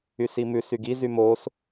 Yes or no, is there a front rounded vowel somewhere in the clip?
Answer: yes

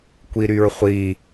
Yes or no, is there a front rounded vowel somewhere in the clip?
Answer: yes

